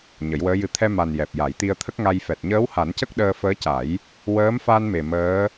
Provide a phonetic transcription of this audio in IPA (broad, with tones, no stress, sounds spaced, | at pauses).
ɲ ə˨˩˦ j w əː˧˥ j ɨ˧˥ t̪ʰ ɛ˧ m a˨˩ n j ɛ˨˩ p̚ j a˨˩˦ j t̪ i˧ ə̯ t̪ʰ ə˦˥ k̚ ŋ a˧ j f ɛ˨˩ t̚ ɲ əː˧˥ w h a˨˩˦ n c ə˦˥ k̚ ɗ əː˧ f əː˧˥ c a˨˩˦ j | w əː˧˥ m f a˧ n m e˨˩ m əː˧˥